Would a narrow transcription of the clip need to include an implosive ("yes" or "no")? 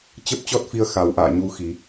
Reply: no